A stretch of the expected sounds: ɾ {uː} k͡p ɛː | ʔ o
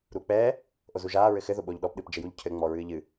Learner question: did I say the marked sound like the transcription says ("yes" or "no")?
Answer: yes